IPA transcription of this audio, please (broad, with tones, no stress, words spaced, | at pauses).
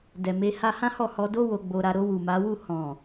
dɛ˨ me˧ha˦ hã˦hɔ˦˨hɔ˧ do˦ wo˧ɡ͡bo˧ɾa˧ ɾo˧wu˨ma˨˦ wu˦˨ hɔ̃˨